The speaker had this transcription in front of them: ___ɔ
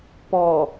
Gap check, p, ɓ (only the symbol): p